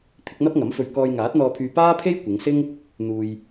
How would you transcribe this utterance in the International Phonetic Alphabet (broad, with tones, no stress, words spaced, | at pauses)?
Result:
t̪ʰɪ˨˥k̚n̪ɐ˥p̚ŋɐ˨˥mfɵ˧ɥ kɔː˧jŋaː˨˥t̚n̪ɔː˧pʰyː˧ paː˥pʰe˥j kʷɪ˨˧ŋsɪ˥ŋ | n̪uː˧j